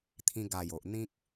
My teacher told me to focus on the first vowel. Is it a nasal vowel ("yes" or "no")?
yes